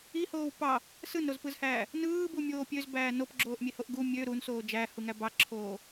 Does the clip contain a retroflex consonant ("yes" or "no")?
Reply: no